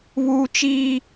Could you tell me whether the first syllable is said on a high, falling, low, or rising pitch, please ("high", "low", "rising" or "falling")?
high